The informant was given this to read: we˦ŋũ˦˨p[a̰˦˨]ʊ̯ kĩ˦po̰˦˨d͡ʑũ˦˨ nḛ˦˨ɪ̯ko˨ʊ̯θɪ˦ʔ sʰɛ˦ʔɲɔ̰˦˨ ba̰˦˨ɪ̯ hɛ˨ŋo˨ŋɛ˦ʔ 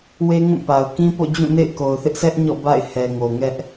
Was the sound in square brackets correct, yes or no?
no